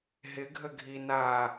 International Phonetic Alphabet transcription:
ɦɪ ɡʱəɡʱi na

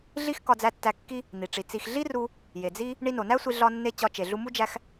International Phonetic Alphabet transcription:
ɮi˦x kɒ˧d͡zæ˧ tːæ˧kːi˦ | n̪i˨ʈ͡ʂi˨ t͡si˨xɮi˦ru˧ | je˨d͡zi˦ | ɳi˧no˨næ˦sʷi˧ ɮɒ˧nːe˧ t͡ɕɒ˧ t͡ʃe˨ɮu˧mu˦ d͡ʒæ˦x

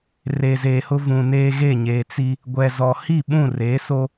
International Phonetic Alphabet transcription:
reː˨zeː˨hʊ˦ vũ˨neː˦ ɣe˦˨ɲeː˨t͡si˦ | ɡʷɛ˨zɔ˨ hi˦˨ɓũ˦˨reː˨˦ so˦

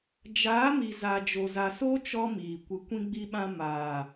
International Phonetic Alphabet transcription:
d͡ʒaː˨˦mi˨ za˨ d͡ʒo˨za˨so˦ t͡ʃɔ˦miː˨ kʷɨ˨kʷĩ˧ɡ͡bi˧ɓã˧ maː˨

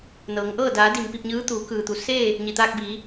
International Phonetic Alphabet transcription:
nɤː˩˧ŋʔɤː˥˨ daː˩˧ di˧˩mpi˥˨p̚ɲɯː˧˥t̪uː˩˧ kɯː˩t̪u˩˧ seː˥˨ | ɲi˩t̪aː˧k̚ biː˩˧

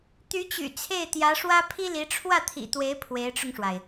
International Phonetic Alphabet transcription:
t̪y˧˥t͡ɕy̰˨˩ t͡sʰe˥˩ɪ̯t̪jä˧˥ʂwä˥ pʰi˥li˧˥ ʈ͡ʂʰwä˥˩t̪ʰḭ˨˩t̪we˧˥ɪ̯ pʰwe˧˥ɪ̯ʈ͡ʂʊ˧ŋʂwa˩ɪ̯

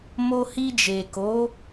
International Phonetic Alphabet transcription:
mo˧hi˧d͡ʒe˨ko˨˦

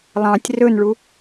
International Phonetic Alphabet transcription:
lˠɑ̃tʲ rɵnɭu

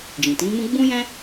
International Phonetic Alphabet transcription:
d͡ʒĩ˨tĩ˨˦mũ˦ ɡ͡bũ˦jɛ̃˦

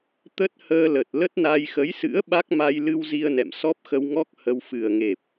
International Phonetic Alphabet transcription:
t̪ə˦˥t̚həː˧lə˨˩t̚ lə˦˥t̚na˧j xə˨˦jsɨ̰˧˥ə̯ ɓa˦˥k̚ma˧j lɨ˧wzi˧ə̯nɛ̰˧˨m sɔ˦˥p̚xə˧wŋɔ˦˥k̚ hə˧w fɨ˨˩ə̯ŋe˨˩p̚

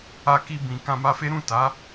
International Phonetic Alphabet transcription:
a˧ki˧ bĩ˨ kã˧ma˧fe˦ ɾũ˦˨ta˨˦

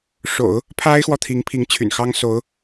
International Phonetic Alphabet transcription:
ʂo̰˨˩˦ʊ̯ | pʰa˥ɪ̯xwɔ˨t̪ʰi˧˥ŋ pʰi˧˥ŋt͡ɕʰy̰˨˩nxɑ˥ŋ so˧˥ʊ̯

